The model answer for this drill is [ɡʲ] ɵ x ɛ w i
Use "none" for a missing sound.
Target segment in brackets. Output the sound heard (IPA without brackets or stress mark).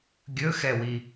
ɡʲ